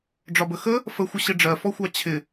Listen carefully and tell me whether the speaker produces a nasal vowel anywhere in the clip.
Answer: no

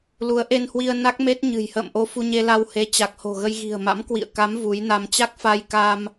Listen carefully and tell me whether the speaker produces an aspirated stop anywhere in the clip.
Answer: no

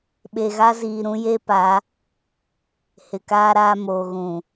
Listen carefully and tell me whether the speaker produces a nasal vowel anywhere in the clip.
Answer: yes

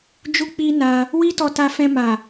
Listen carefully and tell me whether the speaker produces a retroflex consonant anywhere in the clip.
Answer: no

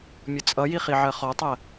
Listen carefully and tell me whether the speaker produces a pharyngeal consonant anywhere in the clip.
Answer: yes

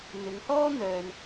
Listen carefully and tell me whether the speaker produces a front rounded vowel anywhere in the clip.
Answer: yes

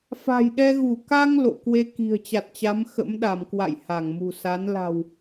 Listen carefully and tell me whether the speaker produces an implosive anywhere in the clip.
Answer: yes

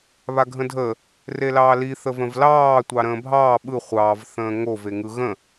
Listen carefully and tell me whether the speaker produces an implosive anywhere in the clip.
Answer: yes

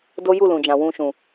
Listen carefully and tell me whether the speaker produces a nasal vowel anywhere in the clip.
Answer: yes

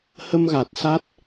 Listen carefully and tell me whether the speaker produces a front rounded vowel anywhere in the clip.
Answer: no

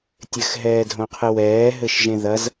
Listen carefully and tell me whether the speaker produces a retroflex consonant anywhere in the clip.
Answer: no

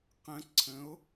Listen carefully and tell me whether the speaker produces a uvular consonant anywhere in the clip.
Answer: yes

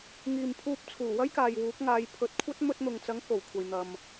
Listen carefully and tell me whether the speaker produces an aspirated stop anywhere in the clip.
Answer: yes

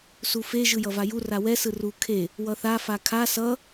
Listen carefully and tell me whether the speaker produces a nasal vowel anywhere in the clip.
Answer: no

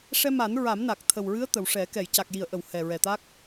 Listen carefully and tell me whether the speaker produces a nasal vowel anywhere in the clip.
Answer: no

